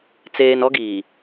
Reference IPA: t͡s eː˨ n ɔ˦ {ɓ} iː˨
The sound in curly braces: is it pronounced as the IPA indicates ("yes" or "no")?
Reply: no